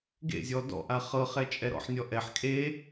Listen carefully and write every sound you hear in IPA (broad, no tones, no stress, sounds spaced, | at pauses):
ɡ ḛ zʲ ɔ d ɔ̰ ʔ a χ ɤ χ ɛ t͡ʃʼ ɛ ɾ ɔ̰ ħ nʲ ɔ ʔ ɛ ħ kʼ e